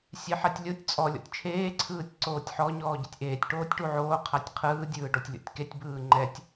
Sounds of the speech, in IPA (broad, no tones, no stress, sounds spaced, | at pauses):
sʲ e ħ a tʲ lʲ o tʲ t͡sʼ ɔ lʲ ɔ̰ tʲ t͡ʃʰ eː ǀʰ ɯː tʲ ǀ oː tʲ ħ ɔ ɲ ɔː ɟ e tʲ ʔ eː tʲ ʈ oː tʲ ʈ u ʕ oː qʰ a tʲ qʰ ɯː dʲ ɯː ɖ ɔ tʲ lʲ ɔ̰ tʲ k e tʲ b ɯː ŋ͡ǃ ɛ tʲ